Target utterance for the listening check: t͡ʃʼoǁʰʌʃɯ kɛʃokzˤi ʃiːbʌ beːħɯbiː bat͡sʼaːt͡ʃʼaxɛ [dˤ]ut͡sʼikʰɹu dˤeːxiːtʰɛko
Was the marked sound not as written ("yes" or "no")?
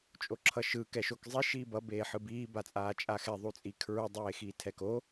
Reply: yes